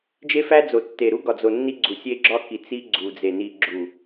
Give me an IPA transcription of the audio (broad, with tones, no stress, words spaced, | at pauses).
d͡ʒe˦fæ˦ d͡zo˨tːe˨ɾu˦ɡɒ˨ d͡zo˨ nːi˦ɡ͡ǀu˨ sʲe˦ɡ͡ǁɒ˦ki˨ t͡si˦ɡ͡ǀu˨d͡ze˨ ni˨ɡ͡ǁu˨